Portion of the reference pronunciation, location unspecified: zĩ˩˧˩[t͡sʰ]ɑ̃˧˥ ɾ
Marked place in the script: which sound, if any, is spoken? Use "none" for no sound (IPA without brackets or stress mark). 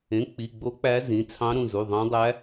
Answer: t͡sʰ